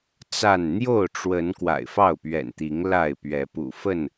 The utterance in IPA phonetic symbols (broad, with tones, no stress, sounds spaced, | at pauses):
t͡s a˥˨ n n̪ j o˥˨ ʊ̯ ʈ͡ʂ w ə˨˦ n k w a̰˨˩ ɪ̯ f ɑ˥˨ ʊ̯ p ɥ ɛ̰˨˩ n t̪ i˨˦ ŋ l a˥˨ ɪ̯ p ɥ ɛ˨˦ p ṵ˨˩ f ə˥˨ n